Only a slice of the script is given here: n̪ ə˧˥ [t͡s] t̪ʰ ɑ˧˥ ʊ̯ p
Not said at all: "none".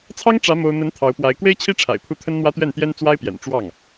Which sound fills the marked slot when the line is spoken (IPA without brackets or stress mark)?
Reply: n